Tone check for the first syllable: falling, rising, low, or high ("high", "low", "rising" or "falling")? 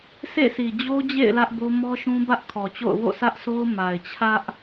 falling